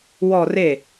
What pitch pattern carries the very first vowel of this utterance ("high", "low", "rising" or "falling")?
falling